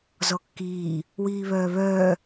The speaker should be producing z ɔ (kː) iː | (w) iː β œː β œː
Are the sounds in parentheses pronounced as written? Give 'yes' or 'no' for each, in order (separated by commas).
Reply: yes, yes